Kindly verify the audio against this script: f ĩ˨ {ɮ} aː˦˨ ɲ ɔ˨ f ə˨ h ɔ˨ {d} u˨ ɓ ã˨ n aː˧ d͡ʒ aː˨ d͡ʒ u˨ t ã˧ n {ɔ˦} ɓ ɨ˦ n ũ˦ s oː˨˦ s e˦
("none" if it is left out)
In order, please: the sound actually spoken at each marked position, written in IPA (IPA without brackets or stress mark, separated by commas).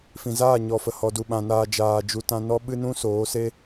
z, d, ɔ˦